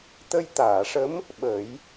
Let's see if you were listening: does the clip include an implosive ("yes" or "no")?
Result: yes